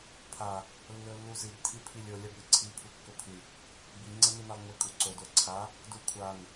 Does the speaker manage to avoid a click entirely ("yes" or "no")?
no